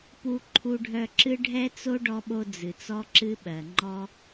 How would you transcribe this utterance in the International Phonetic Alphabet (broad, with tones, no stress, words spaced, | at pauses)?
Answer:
pu˧ǃʰu˧ɖʱœ˧ǁɨ˦ ɖʱɛ˦t͡so˦ ɖɔ˧ɓo˧ d͡zɨ˨t͡sɔ˦ǁɨ˦ɓɜ˨ ŋ͡ǃɔ˧